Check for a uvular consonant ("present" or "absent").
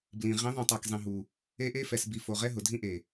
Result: present